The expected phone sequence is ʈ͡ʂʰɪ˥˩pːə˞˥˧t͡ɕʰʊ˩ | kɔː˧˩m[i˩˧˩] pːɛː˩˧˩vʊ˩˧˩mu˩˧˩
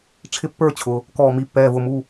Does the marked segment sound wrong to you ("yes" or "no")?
no